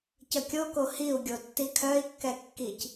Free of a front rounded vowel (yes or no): no